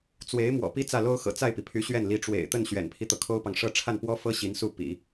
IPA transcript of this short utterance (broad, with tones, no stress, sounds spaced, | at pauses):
t͡s w e˧˥ ɪ̯ m w ɔ̰˨˩ p i˥˧ t͡s ä˥˩ l o˥ ʊ̯ x ɤ̰˨˩ t͡s a˥˩ ɪ̯ p i˩ pʰ y˧˥ ɕ ɥ ɛ˥˩ n l i˧˥ ʈ͡ʂ w ḛ˨˩ ɪ̯ t̪ ə˥˩ n ɕ ɥ ɛ̰˨˩ n pʰ i˦ t̪ ɤ˩ kʰ o˥ ʊ̯ p ɑ˨ ŋ ʂ ɤ˥˧ ʈ͡ʂʰ a˥˩ n p w ɔ˥ f ɤ˥ ɕ i˧˥ n s u˥˩ p ḭ˨˩˦